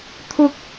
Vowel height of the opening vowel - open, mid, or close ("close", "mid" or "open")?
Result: close